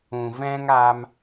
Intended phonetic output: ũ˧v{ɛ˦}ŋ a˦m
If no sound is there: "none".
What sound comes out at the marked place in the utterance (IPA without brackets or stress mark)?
ɛ̃˦